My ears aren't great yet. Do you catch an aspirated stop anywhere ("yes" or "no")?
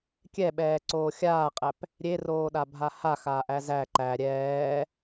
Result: no